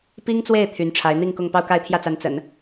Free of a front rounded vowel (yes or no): no